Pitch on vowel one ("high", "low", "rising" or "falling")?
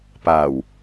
low